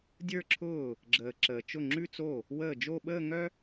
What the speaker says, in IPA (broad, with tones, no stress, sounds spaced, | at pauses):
dʲ ə˞˥˧ ǁʰ ʊː˥˩ | ɡ͡ǁ əː˨ ǁ əː˨ t͡ʃ ʊ˥˩ ŋ͡ǁ ʉ˥˧ t͡s o˥˩ | w əː˥˩ d͡ʒ o˥˧ ɓ əː˥˧ ŋ œ˥